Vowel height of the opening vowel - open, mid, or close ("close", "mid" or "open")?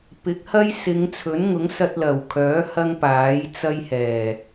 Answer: close